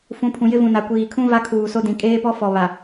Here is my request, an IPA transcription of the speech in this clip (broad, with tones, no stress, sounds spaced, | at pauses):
f ũ˨˦ pʰ ũ˨ j ɪ˦ v ũ˨ n a˨ kʷ iː˨ kʰ ũ˦ v a˦ kʰ uː˨ s o˦ d ĩ˨ kʼ eː˦ p ɔ˦ f ɔ˨ β a˨